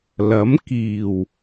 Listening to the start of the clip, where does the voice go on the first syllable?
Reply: rising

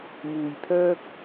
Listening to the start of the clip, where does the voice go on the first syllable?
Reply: low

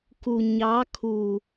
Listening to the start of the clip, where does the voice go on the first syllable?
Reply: low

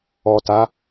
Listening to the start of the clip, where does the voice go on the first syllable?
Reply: low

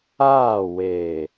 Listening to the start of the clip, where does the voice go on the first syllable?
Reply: falling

